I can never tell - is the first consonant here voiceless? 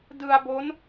no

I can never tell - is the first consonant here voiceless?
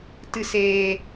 yes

